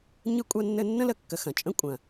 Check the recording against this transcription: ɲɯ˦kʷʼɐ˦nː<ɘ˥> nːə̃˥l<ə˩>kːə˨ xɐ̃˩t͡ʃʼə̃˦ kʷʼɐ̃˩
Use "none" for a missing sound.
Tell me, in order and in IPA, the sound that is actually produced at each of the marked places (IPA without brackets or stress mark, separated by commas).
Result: ɘ˦, ə˨